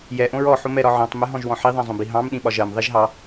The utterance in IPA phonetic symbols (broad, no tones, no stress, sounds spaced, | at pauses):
j ɛ ʔ õ ɹ ɔ ħ o m ɛ ɾ ɒ ʕ ɔ̃ tˤ m ɛ ɦ ɔ̃ ʒ w ɔ̃ ħ i ðˤ ɛ̃ zˤ õ b i ɦ ɑ̃ m ɗ ĩ ɓ ɒ ʒ ɜ m ðˤ i ʒ ɦ ɑ